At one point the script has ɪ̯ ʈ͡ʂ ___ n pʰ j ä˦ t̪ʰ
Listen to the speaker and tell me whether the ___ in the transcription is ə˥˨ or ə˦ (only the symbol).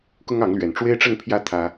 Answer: ə˥˨